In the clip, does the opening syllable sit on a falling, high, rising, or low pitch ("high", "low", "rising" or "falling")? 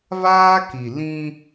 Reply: high